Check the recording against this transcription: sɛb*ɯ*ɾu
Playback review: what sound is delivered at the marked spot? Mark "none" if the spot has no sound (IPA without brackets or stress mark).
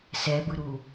ɯ